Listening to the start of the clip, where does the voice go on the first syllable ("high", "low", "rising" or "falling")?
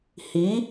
rising